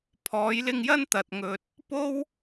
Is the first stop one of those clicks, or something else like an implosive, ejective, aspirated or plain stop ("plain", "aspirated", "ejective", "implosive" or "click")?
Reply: aspirated